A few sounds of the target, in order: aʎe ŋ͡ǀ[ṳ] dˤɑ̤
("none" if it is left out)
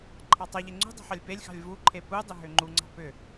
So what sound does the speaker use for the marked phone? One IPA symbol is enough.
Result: ṳ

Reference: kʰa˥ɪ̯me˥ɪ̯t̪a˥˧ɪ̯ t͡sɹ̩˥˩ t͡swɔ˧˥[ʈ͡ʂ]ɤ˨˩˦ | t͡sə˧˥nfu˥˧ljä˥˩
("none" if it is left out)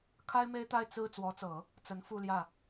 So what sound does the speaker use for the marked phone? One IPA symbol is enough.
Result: t͡s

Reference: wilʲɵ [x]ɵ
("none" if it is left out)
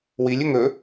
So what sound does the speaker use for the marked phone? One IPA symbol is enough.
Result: ŋ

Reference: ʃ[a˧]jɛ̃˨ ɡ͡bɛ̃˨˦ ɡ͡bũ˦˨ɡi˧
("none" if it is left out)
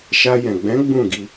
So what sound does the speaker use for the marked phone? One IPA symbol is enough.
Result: a˧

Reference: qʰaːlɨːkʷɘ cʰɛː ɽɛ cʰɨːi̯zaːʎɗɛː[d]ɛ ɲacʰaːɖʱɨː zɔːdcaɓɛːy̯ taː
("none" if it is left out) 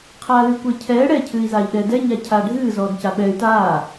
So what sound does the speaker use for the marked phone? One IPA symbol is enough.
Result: d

